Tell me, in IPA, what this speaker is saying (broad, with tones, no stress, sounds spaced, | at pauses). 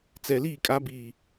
t͡s ɛ˨ l iː˦˨ kʼ a˨˦ b iː˨